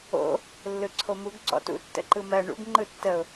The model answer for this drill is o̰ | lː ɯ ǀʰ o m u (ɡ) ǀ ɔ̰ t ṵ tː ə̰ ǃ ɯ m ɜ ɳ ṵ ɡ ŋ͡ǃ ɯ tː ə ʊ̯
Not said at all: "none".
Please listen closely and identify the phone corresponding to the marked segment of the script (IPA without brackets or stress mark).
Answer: ɡ